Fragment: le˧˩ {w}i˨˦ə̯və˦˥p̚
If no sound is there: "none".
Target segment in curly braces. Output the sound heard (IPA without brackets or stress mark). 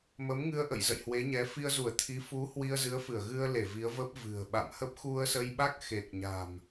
v